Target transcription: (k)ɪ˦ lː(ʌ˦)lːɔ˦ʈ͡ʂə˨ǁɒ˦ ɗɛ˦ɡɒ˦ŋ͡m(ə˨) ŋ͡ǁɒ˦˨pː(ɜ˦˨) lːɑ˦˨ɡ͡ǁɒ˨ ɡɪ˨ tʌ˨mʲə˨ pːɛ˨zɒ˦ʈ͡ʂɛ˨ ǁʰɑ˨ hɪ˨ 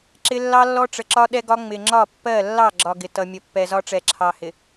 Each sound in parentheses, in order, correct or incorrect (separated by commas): incorrect, incorrect, incorrect, correct